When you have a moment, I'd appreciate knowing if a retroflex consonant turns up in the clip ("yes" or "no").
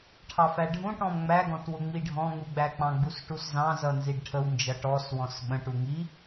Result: yes